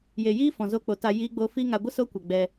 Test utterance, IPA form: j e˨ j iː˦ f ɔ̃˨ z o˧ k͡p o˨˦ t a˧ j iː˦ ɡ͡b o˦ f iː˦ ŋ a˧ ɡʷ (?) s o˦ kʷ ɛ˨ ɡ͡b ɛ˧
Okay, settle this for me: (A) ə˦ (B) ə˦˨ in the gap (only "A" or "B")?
A